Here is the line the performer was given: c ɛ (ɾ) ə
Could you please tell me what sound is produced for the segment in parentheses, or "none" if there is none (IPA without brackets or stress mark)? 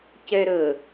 ɾ